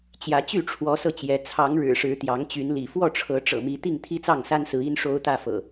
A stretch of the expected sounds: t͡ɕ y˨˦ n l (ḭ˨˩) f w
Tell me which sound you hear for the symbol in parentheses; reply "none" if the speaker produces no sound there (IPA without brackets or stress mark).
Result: ḭ˨˩